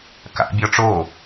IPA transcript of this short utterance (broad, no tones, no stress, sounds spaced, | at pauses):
k a̰ bʲ ɔ ʈ͡ʂ o